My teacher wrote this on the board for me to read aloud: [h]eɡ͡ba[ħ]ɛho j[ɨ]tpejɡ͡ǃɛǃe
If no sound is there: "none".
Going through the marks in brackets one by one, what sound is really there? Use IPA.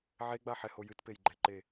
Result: ʕ, ħ, ɨ

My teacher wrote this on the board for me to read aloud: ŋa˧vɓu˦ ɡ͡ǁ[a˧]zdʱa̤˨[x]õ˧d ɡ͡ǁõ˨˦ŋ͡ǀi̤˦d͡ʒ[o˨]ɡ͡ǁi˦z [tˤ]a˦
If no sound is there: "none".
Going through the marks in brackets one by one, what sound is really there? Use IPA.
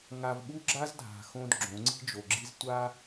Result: a˦, x, o˨, tʷ

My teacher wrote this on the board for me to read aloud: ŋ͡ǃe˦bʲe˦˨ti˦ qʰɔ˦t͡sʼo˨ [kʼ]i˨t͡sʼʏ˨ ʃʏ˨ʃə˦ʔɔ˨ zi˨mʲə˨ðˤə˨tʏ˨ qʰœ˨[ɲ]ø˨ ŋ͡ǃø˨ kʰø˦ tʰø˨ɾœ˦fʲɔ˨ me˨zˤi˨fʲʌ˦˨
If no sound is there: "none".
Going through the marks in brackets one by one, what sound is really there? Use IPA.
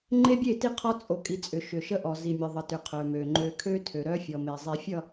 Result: kʼ, m

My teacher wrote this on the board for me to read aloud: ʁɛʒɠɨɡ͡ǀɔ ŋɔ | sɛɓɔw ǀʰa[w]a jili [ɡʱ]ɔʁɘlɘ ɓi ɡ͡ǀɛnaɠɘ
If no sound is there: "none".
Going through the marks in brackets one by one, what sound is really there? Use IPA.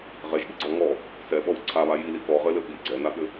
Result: β, k

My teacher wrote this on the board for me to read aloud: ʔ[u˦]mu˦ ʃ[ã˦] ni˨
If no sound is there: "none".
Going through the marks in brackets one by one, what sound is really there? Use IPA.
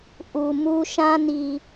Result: u˨, ã˦

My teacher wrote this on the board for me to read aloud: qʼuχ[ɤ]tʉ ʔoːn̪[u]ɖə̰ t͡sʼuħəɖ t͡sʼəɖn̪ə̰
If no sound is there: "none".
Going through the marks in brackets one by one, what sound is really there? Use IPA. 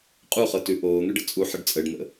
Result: ɤ, ʉ

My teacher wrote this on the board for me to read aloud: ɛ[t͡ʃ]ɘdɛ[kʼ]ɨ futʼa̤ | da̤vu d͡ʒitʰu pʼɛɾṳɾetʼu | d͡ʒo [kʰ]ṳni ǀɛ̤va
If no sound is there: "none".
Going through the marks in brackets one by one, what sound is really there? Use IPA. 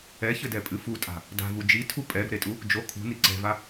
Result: ç, pʼ, kʰ

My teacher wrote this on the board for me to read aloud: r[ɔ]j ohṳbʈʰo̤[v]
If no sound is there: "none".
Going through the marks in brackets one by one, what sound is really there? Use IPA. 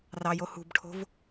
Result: ɑ, v

